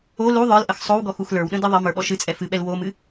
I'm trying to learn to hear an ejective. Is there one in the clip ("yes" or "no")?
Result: yes